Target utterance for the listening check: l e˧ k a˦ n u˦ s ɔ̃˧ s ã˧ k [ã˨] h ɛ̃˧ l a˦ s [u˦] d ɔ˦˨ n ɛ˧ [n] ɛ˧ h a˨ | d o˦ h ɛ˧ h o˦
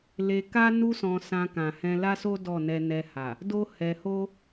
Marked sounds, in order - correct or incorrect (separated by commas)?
correct, incorrect, correct